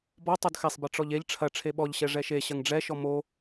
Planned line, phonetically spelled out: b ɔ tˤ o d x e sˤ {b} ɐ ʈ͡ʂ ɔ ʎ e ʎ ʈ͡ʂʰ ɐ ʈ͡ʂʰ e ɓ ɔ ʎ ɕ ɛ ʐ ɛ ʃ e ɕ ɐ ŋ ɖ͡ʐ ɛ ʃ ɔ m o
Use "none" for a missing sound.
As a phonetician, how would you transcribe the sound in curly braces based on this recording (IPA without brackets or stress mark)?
b